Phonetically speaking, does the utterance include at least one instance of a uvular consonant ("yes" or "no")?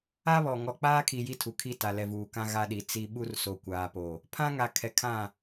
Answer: no